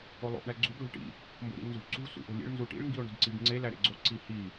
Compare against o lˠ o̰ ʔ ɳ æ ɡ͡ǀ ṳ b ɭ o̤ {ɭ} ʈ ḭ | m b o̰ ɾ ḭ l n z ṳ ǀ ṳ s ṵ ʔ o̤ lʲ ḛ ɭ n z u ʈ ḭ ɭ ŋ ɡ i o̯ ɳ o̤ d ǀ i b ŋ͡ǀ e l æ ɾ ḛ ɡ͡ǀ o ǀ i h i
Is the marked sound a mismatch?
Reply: no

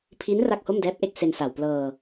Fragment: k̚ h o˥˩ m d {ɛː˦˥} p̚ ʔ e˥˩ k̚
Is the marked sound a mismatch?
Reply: no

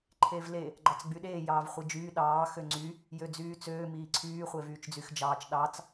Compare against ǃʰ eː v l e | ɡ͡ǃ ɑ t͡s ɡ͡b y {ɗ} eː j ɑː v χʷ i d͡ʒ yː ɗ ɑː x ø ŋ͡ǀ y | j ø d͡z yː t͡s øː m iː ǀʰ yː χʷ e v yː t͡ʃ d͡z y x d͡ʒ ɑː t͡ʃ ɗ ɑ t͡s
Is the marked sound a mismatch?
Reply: no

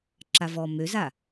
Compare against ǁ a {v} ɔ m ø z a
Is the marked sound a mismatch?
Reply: no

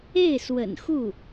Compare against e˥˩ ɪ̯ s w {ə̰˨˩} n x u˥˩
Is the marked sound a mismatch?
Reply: no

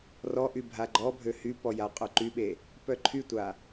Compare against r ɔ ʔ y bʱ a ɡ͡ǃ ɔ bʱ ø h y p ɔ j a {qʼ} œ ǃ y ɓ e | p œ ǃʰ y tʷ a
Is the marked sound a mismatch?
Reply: no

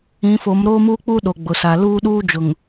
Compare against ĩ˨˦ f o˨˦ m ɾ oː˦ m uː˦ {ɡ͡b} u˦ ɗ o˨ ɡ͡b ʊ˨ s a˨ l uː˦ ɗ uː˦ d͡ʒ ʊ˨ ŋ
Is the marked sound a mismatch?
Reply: yes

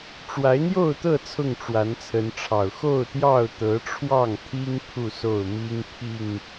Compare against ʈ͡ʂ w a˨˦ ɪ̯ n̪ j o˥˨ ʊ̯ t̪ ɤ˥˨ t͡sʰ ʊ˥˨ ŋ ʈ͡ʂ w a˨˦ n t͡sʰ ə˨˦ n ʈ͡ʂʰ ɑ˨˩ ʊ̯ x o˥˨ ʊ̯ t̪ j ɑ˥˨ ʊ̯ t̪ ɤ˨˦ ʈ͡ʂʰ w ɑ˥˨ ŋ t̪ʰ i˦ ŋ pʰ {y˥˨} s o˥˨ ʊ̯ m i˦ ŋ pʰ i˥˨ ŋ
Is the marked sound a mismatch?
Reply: yes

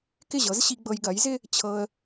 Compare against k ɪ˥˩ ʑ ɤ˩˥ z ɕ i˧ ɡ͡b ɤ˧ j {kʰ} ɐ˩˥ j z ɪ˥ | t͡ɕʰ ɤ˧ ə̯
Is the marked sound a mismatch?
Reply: yes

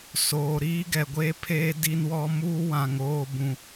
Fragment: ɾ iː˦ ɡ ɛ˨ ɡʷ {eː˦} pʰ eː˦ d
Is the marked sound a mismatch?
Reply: no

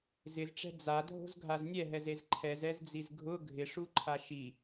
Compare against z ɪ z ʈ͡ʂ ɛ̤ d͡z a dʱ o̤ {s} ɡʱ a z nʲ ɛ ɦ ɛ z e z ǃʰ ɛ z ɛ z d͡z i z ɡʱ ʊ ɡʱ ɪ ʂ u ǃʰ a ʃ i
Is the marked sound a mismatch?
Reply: yes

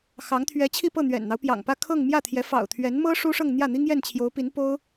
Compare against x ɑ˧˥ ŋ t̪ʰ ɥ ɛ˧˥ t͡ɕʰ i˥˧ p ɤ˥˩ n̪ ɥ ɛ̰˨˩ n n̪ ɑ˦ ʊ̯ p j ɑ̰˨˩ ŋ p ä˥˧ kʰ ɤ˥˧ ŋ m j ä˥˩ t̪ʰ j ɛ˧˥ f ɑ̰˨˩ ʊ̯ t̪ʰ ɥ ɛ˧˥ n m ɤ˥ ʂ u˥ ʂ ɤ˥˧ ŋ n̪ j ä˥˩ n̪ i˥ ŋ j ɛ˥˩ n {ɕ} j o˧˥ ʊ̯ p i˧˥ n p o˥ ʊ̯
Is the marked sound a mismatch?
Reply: yes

